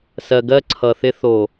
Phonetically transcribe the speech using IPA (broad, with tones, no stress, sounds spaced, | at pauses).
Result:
s ɜ˨ ɡ ɜ˦ ǀʰ ʌ˨ θ ɪ˦ θ o˨